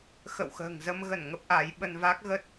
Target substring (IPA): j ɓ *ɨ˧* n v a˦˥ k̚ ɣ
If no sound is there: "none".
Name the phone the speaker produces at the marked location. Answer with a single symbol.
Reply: ə˧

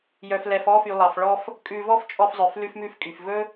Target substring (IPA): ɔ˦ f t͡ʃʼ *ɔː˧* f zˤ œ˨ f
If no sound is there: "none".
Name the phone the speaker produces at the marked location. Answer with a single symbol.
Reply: ɔ˧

